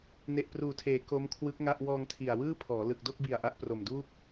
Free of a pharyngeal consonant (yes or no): yes